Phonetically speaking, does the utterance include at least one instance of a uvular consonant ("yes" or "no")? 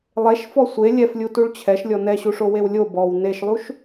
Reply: no